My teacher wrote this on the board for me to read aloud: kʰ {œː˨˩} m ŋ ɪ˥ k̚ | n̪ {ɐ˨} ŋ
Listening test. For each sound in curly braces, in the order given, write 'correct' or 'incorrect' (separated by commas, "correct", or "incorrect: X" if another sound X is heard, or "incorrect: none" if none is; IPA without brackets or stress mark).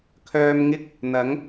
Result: incorrect: œː˧, incorrect: ɐ˨˥